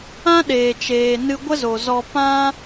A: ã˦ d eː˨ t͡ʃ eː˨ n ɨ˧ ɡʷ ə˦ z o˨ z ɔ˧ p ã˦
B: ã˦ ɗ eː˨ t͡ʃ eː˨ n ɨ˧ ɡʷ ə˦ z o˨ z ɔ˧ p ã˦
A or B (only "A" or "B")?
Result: B